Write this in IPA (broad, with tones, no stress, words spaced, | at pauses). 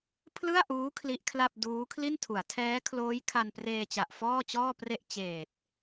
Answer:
pʰlɯ˥˩a̯ʔuː˦˥ kʰli˦˥ʔkʰla˥˩p̚ duː˦˥kʰli˥˩ntʰu˩˦a̯ tʰɛː˦˥kʰloː˦˥j kʰa˧npreː˧t͡ɕa˨˩ʔ fɔː˥˩t͡ɕɔː˥˩pre˥˩ʔ t͡ɕeː˨˩t̚